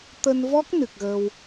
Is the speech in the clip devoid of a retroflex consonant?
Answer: yes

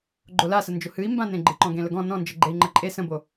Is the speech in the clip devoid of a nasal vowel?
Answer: no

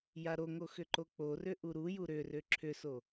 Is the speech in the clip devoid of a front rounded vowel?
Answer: no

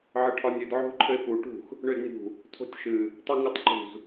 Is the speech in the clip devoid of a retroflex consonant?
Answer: no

